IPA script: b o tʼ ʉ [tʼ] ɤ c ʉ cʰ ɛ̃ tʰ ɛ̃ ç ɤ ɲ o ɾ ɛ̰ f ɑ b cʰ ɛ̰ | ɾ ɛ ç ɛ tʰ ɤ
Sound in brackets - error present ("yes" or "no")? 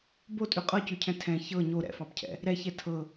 yes